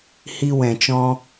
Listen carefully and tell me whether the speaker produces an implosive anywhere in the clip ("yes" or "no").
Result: no